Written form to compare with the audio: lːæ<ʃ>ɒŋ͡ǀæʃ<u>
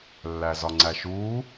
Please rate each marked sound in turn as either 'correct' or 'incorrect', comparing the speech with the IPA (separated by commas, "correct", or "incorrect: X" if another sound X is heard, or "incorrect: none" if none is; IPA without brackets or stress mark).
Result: incorrect: z, incorrect: uː